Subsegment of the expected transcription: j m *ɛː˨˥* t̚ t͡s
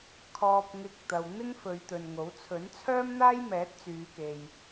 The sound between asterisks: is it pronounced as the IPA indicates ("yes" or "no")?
yes